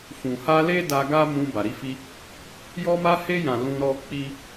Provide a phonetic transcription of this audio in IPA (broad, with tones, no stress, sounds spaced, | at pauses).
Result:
f ũ˨ h a˧ l e˦ d a˧ ɡ a˦ m ũ˧ b a˨ ɾ i˨˦ f i˧ | j ɔ˧ m a˧ h e˧ j ã˨ l ũ˧ ɾ ɔ˦ k͡p i˦